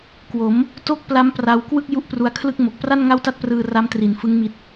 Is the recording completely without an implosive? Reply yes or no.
yes